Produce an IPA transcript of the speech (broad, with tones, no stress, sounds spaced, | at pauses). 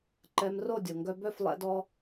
ǃ ɛ˧ m r o˦˨ dʲ o˨ ŋ ɡ œ˧ b œ˦˨ f lˠ ɛ̰˧ d ɔ˧